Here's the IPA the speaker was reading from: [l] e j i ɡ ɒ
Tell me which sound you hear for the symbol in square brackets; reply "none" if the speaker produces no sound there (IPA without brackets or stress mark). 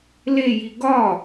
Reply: l